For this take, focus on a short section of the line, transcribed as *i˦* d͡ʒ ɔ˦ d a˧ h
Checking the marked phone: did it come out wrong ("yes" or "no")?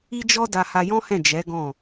no